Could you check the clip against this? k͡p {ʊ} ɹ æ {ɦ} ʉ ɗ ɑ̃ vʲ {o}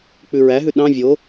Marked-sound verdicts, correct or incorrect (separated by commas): incorrect, correct, correct